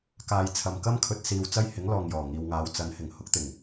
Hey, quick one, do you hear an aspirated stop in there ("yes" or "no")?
yes